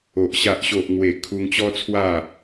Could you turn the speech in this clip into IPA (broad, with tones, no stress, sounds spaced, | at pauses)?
o˨ ʔ ɕ a˨ ʔ ɕ o˨ ʔ ŋ w e˨˩ kʰ u˧ ŋ t͡ɕ ɔ˦ t͡sʰ w a˥˧